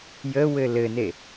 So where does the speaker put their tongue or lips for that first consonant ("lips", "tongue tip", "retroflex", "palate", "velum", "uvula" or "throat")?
palate